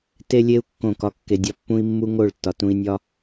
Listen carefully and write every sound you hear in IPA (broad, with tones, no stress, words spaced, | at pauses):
te˦lʲe˦u̯ kːõ˦˨kɒ˦kːe˧dʲɒ˦ pːũ˦i̯mːu˦ŋo˦˨ɭ tːɒ˨tũ˧i̯nʲɒ˦